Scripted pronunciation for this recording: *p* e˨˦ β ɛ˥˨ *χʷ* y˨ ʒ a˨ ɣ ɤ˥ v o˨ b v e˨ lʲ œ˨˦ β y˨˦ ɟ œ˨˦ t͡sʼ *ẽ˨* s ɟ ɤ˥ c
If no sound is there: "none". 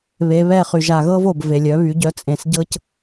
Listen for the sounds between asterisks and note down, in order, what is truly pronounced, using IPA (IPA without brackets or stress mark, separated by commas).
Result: β, χ, ẽ˨